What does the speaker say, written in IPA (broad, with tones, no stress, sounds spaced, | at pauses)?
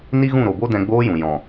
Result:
n i˦ ɣ ũ˦˨ ɾ o˨ b o˦ d ɛ̃˧ ɡ͡b oː˦ j ũ˨ j ɔ̃˨